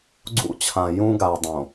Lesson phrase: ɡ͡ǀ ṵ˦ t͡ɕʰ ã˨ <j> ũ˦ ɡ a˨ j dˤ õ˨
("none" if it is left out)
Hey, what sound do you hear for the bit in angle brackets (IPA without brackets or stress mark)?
j